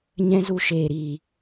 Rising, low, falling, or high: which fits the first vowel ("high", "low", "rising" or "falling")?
high